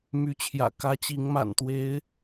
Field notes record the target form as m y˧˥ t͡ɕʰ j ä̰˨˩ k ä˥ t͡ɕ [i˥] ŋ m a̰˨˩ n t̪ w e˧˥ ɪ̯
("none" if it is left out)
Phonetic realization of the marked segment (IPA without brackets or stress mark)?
i˧˥